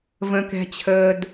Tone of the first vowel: low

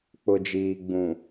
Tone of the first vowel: low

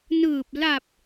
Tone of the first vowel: low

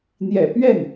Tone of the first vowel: low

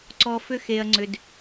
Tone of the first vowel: low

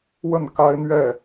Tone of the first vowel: falling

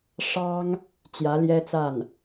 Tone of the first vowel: high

